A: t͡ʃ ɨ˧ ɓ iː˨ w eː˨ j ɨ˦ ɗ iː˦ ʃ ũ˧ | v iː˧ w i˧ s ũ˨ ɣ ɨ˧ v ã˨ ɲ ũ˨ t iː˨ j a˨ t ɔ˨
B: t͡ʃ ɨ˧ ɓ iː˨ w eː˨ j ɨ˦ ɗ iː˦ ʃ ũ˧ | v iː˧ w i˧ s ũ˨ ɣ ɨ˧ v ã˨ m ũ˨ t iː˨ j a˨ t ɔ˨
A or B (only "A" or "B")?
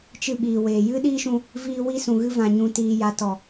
A